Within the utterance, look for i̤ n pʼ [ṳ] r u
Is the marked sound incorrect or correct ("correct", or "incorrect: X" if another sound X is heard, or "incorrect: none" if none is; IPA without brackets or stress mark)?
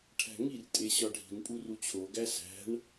incorrect: u